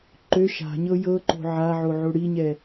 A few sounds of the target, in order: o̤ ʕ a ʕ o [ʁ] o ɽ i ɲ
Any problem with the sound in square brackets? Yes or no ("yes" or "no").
yes